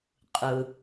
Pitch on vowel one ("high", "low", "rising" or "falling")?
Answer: low